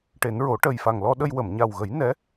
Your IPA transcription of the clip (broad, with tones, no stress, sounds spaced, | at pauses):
ʈ e˨˩˦ n ɹ o˨˩˦ ʈ ə˨˩ j f a˨˩ ŋ l ɔ˧ ɗ ə˧ j w ə˨˩˨ m ɲ a˨˩ w ɣ ə˨˩˦ j n ɛ˧˥